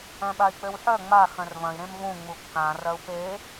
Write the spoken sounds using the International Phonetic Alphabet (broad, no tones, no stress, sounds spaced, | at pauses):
œ̃ ɓ a i̯ k͡p ø w ħ œ ŋ͡m a x œ̃ r v ɐ̃ i̯ ɾ ẽ m v ũ ŋ͡m u kː ã r ɐ u̯ p e